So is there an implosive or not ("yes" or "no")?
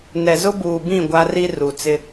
no